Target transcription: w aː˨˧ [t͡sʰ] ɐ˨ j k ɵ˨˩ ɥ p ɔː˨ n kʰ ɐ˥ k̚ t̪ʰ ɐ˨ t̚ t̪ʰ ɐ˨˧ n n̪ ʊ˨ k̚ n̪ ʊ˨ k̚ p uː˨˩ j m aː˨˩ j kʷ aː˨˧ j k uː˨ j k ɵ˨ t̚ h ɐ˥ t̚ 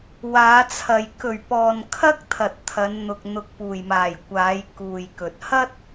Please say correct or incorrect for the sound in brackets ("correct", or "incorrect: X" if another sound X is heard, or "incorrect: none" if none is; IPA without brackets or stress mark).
correct